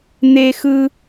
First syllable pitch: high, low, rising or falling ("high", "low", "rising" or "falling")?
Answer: high